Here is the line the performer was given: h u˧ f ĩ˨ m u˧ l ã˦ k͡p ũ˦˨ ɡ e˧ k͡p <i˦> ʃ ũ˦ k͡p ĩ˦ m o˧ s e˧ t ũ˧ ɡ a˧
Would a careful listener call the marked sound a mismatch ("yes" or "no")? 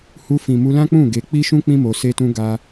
no